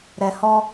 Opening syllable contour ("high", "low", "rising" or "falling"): low